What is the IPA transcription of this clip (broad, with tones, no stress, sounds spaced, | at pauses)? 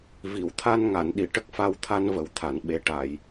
v i˨˩˨ w t̪ʰ a˧ n ŋ a˨˩˨ n ɗ i˨˩˨ ʈ ə˦˥ k̚ f a˧ w t̪ʰ a˧ n v ə˨˩˦ w t̪ʰ a˨˩˨ n ɓ e˨˩ ʈ a˨˩˨ j